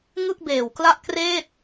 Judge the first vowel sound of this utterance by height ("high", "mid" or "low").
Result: high